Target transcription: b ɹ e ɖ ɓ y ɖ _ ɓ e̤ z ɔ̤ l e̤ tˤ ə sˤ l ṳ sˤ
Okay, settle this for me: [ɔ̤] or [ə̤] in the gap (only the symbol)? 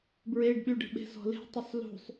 ə̤